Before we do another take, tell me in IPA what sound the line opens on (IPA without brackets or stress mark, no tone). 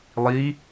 lˠ